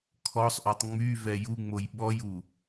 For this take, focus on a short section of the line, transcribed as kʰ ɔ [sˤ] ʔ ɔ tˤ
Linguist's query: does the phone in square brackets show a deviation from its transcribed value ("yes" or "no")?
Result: no